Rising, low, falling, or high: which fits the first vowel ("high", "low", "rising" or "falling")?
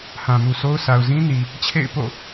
low